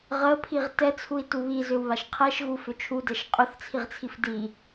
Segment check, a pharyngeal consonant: absent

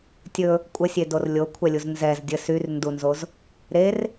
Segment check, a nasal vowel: absent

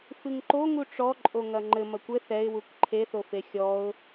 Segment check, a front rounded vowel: absent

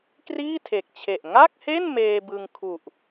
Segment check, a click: absent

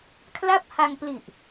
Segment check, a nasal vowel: absent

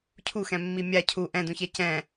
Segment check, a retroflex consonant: absent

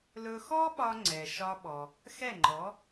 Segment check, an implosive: present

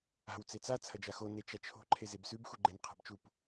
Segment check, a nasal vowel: absent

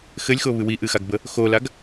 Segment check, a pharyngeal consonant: absent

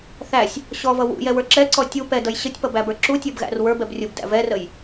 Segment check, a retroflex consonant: absent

